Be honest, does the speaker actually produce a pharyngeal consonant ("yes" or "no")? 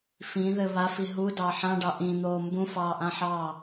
yes